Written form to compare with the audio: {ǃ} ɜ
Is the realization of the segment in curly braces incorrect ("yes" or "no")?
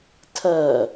yes